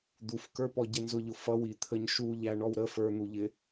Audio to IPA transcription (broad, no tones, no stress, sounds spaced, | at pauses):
d̪ u f k ə˞ p ɔ ɟ ɛ n z ʊ ʎ ʊ f ʌ w i t̪ʰ ə ɲ ʃ u ʎ æ ɳ ɔ w ɾ ə f ə˞ n̪ u ʎ ɪ